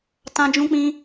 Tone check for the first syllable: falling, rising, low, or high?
high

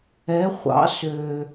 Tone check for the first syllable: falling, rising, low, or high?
rising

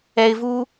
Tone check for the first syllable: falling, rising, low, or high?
low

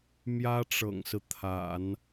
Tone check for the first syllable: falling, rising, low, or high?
high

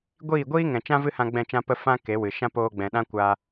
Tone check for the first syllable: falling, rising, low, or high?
falling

